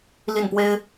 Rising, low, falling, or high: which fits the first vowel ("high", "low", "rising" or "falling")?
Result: falling